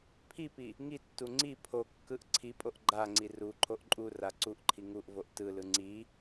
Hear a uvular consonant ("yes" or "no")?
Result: no